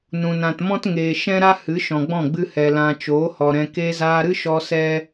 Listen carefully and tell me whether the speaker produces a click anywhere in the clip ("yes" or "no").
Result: no